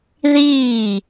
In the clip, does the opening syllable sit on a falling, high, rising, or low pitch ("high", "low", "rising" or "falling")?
falling